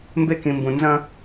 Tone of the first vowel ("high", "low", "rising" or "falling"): high